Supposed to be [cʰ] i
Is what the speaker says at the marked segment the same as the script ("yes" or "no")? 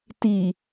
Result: no